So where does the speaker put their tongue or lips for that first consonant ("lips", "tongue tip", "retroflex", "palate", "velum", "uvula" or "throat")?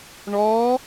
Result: retroflex